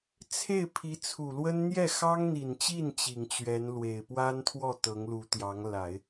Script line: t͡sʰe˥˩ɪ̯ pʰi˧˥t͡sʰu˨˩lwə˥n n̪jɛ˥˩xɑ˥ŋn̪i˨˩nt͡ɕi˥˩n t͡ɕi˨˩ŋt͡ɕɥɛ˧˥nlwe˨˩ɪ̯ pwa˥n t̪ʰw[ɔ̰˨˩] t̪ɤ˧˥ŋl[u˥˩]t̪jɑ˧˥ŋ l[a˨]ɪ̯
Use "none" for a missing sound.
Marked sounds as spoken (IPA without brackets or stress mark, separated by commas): ɔ˥˩, u˧˥, a˨˩˦